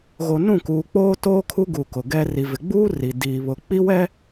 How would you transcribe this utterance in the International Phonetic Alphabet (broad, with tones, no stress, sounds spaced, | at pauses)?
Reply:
ɣ o˨ n ũ˦˨ k uː˨ k͡p oː˦ t oː˦ kʰ u˦ ɡ u˨ k ʊ˨ ɡ ɛ˦ r i˨ v ɪ˨ ɡ͡b uː˦ r i˨ d iː˨ β ʊ˨ k͡p i˦ w ɛ˦